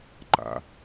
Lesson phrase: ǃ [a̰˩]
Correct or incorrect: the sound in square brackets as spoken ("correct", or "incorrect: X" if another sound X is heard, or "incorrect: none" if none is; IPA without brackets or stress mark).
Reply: correct